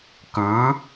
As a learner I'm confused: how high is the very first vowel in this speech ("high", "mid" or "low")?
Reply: high